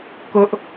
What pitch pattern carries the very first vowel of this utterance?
high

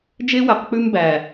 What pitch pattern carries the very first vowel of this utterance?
high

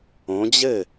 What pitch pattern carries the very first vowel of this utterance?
rising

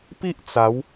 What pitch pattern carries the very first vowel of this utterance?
high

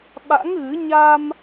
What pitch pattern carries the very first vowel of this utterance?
rising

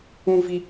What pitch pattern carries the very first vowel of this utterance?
high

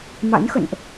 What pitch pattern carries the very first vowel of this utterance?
rising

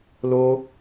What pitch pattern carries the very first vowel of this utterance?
high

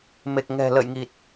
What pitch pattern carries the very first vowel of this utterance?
low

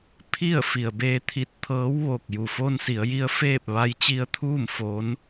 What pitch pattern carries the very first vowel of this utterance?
falling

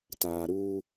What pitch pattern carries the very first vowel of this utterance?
low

